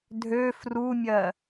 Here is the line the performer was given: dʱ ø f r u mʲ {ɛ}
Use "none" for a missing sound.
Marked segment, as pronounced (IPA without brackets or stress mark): ɜ